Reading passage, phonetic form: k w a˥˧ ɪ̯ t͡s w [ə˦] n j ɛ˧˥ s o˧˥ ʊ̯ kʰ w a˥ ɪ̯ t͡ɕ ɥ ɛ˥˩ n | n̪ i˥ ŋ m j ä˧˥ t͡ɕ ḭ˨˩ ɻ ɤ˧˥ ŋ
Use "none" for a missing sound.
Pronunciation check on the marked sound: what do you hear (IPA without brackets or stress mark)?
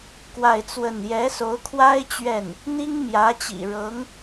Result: ə˥˩